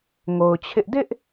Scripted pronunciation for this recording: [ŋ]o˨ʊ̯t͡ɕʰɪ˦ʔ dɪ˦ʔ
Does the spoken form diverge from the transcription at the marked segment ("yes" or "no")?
no